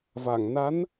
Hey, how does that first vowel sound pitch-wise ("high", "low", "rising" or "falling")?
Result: low